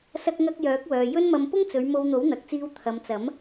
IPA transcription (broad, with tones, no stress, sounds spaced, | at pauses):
s ɐ˥ k̚ ŋ ɐ˥ k̚ j œː˨˥ k̚ w œː˨ j ɵ˥ n m ɐ˧ m p ʊ˥ ŋ t͡s ɵ˨˧ ɥ m o˧ w n̪ o˨˥ w n̪ ɐ˨ k̚ t͡s iː˧ w t̪ʰ ɐ˨˧ m t͡s ɐ˨˥ m